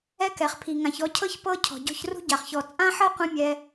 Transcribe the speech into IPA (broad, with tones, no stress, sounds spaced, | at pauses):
ɛ˥ k ɛ˩ χ pʰ i˩ ŋ ã˩ ç ɔ˧ cʰ ɤ˥ ç p ɤ˥ cʰ ɔ̤˩ ɟ ɔ̤˧ ç r ṳ˥ ɟ a˩ χ ç ɔ˩ t͡sʼ ã˥ ħ ɤ˥ qʷ ɛ̃˥ mʲ ɛ˧